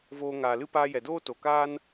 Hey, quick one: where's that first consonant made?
lips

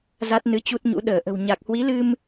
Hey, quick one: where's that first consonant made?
tongue tip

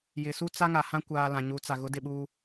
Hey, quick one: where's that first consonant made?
palate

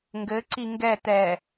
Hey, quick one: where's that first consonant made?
velum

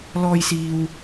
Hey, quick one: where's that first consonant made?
tongue tip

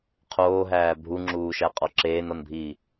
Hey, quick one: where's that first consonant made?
uvula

